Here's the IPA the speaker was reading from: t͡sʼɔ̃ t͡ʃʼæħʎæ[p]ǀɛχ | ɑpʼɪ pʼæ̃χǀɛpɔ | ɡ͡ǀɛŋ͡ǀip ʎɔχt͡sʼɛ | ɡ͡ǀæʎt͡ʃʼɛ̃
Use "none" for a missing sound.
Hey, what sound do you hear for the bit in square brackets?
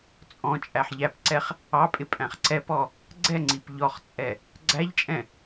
p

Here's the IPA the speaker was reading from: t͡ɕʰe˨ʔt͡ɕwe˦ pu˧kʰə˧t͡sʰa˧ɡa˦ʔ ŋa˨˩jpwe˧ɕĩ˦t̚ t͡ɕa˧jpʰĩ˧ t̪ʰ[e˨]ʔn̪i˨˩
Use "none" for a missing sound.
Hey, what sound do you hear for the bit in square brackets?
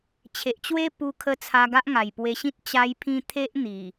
e˦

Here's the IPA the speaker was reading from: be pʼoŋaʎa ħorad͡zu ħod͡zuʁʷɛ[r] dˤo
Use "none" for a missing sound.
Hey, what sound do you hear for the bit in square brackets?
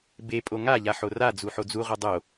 none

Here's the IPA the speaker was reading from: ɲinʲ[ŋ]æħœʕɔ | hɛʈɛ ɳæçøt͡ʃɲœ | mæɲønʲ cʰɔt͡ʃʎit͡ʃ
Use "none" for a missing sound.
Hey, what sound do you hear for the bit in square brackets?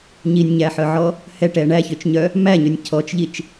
ɲ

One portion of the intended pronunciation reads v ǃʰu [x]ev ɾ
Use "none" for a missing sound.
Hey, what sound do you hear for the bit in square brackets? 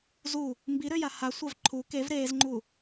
k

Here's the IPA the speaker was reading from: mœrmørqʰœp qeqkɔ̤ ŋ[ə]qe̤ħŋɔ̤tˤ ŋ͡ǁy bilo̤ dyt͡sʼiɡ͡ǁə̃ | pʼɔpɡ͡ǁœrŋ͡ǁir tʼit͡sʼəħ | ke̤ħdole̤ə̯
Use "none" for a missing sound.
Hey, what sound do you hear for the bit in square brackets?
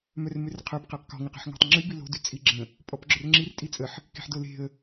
ə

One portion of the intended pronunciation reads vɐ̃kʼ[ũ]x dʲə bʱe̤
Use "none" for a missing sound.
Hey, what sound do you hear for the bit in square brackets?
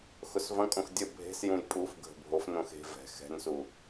õ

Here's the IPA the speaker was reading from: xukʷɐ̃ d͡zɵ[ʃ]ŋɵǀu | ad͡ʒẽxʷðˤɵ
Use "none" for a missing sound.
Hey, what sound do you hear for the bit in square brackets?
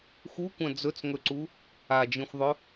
t͡s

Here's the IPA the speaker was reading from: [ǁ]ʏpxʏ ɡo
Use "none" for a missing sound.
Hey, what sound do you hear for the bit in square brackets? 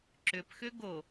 ǁ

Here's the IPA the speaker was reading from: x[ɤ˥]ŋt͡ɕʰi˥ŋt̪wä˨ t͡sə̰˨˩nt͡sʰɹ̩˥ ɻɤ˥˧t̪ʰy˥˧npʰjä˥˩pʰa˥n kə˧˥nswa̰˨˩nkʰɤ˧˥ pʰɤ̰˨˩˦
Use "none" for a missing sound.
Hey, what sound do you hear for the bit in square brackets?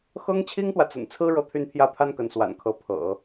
ɤ˥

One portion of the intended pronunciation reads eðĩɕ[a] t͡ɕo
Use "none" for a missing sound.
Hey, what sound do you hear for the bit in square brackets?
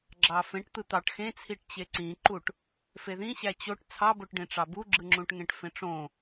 æ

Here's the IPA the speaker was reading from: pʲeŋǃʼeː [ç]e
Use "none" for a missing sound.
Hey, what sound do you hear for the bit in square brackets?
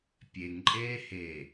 h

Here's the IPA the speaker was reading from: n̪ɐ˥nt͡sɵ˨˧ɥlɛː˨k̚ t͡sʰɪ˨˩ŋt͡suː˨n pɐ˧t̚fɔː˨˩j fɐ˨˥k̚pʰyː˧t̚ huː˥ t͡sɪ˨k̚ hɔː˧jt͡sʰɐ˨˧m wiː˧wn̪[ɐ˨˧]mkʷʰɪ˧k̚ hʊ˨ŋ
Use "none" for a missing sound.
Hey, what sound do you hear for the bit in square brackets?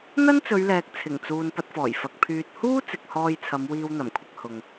ɐ˨˩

